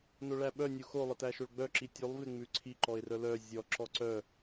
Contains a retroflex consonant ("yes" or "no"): yes